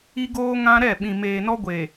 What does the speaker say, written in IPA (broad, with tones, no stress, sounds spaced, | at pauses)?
i˦ ɡ oː˦ ŋ ã˦ ɾ ɛ˦˨ ɓ ĩ˨ m eː˨ n ɔ˦ ɡʷ e˨